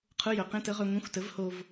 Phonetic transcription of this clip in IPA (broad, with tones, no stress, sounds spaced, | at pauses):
qʰ ʊ˧˥˧ j œ˩˧ q ẽ˧˥˧ t ə˦˥ ʁ œ˧ ŋʷ ẽ˧˥˧ xʷ t ə˨˥ v h o˧ v